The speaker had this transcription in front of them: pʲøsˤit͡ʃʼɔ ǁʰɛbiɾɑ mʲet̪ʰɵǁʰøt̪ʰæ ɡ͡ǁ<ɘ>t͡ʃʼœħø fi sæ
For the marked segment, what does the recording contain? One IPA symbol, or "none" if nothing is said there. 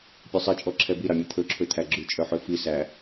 ʉ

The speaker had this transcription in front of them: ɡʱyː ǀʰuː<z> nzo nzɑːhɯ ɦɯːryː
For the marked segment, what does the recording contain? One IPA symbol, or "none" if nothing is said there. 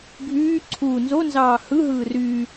none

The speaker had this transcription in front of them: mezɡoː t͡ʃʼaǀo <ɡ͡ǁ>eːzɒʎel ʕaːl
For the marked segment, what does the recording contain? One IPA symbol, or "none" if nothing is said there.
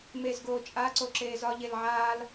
ǁ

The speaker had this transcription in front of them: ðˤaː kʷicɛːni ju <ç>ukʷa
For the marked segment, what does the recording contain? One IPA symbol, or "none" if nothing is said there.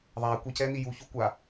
ç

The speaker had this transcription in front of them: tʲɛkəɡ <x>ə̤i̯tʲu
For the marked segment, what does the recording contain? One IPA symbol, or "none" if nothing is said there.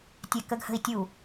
h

